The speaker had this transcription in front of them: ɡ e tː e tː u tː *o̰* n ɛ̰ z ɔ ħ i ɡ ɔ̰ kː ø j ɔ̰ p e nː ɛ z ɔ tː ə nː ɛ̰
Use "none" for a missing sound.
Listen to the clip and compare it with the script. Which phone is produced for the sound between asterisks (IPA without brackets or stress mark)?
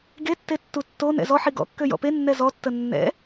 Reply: o